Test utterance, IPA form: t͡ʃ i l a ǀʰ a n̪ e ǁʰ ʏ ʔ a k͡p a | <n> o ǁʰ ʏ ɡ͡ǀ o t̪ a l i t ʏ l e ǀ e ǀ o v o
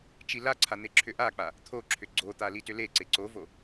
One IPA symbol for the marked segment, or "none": t̪ʰ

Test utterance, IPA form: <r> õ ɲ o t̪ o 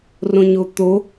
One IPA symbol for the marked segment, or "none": r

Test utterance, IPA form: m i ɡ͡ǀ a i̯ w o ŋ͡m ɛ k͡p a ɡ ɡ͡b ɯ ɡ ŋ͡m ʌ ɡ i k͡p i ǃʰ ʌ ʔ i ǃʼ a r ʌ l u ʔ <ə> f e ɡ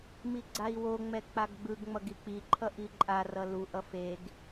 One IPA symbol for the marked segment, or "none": ʌ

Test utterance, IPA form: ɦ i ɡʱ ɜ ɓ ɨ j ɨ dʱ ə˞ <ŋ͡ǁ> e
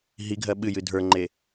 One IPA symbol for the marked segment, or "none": ŋ͡ǃ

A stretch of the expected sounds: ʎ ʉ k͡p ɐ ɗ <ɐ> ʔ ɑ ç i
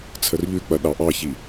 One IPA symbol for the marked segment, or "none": ɑ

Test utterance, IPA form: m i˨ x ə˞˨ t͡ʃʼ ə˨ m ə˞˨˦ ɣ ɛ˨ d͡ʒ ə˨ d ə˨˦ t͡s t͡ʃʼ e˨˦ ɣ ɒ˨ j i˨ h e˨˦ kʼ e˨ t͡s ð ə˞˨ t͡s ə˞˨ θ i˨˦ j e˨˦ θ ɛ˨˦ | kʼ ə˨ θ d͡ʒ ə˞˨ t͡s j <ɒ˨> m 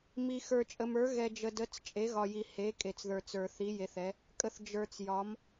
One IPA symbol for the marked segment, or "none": ɒ˨˦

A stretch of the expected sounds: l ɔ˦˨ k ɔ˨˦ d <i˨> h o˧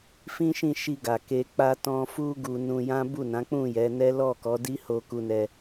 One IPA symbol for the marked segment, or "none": i˦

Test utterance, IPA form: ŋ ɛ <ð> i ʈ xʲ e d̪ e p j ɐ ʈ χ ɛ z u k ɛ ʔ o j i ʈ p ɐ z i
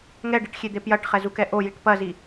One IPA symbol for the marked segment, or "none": ɖ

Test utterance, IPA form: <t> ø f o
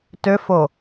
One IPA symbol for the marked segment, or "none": t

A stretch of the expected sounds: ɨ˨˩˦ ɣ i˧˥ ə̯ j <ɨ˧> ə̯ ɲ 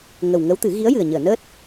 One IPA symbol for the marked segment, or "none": ɨ˨˩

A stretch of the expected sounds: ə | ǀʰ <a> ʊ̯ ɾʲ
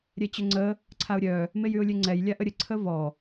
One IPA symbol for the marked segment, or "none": a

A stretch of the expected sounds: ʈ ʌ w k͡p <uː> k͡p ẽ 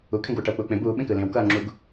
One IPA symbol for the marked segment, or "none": uː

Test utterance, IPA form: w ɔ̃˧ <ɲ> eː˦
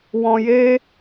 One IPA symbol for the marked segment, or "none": j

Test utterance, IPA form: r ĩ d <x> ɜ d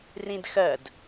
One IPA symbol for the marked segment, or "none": x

